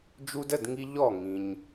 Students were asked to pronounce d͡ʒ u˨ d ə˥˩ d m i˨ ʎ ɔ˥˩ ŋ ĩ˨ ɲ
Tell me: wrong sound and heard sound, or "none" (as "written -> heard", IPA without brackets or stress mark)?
m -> ŋ